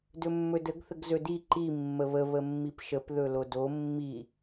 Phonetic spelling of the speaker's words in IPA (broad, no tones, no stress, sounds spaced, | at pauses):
d ɵ mː ɵ d ə ɡ θ ə ɡ z ɵ d i ǃ i mː ə β ə β ə mː i p ʃ ə p ð ɵ l o d o mː i